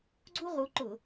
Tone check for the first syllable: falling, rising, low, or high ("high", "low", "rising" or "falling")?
high